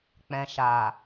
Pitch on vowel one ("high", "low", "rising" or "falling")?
low